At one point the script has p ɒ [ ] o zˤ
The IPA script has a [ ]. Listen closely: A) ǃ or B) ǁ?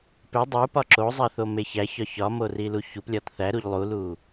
B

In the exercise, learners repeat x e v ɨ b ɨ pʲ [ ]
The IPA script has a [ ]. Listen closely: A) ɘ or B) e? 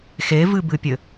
A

